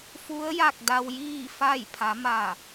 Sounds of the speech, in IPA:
f u˧˥ ə̯ j a˥˨ k̚ d a˧ w j iː˥˨ f a˥˨ j pʰ a˩˧ m a˧˩

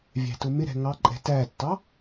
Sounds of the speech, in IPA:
vʲ æ̤ t ʊ m ɪ ɾ ɛ̤ ŋ ɑ ǃʼ ɛ̤ t æ tː ɑ

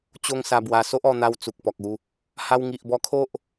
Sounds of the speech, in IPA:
t͡ɕ o˦ ŋ s a˧ b w a˧ s o˦ ʔ ɔ˧ n̪ a˧ w t͡s u˨ k̚ p ɔ˨ k̚ u˧ | h a˧ w ŋ i˨ ʔ b ɔ˧ kʰ o˦ ʔ

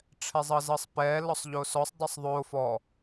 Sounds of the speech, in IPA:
ʈ͡ʂʰ ɛ zˤ ɤ z ɤ sˤ p ɛ l ɔ sˤ ʎ o s ɔ sˤ dˤ ɤ sˤ ðˤ o f ɔ

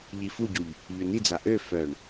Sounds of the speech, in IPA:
ʎ i f u ɟ u ʎ | ʎ ø n̪ i d͡z a ʔ ø f œ ɳ

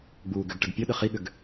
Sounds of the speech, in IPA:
ɡ͡b uː ɡ ʏ ɡ ʈ ə ɡ pʲ o ɗ ə χ i ɠ ʏ ɡ

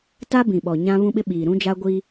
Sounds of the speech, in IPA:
t a˦ b ĩ˨ ɓ ɔ˨ ɲ ã˦ β ũ˦ ɓ ɪ˦ ɓ iː˨ ɾ ũ˦ d͡ʒ a˦ ɡʷ i˦

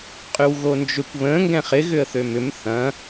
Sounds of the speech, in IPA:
qʼ y w ɣ o n d͡ʒ ʏ kʷ β ə̃ ŋ ɡ ɛ̃ χ ɪ ɣ ʏ ə̯ θ ø m ʏ m θ ɐ̃

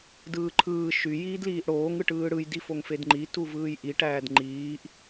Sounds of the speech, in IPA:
d ɯː ǃʰ ɯː ʃ y j iː d l iː ʔ ɽ oː ŋ ɯ ʈ ɯː ɽ ɯ j d i f o ŋ f e d ŋ͡ǃ i t u v ɯː j ʔ i ʈ æː d ŋ͡ǃ iː ʔ

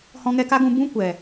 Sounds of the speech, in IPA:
h ɔ̃˧ ŋ ɛ˧ k a˦ ɡ ũ˧ b ũ˦ kʷ ɛ˨

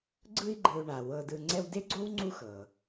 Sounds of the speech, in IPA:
ɡ͡ǀ ɯ˦ i̯ ɡ͡ǃ ɯ˨ u̯ ɳ a˩ w ɤ˨ d ɯ˨ ŋ͡ǀ ɛ˦ w d e˥ ɡ͡ǀ o˥ w ŋ͡ǀ u˦ x ɤ˩

